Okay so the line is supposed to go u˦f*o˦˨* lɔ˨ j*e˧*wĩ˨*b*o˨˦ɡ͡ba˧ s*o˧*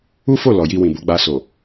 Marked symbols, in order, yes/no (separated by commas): yes, no, yes, no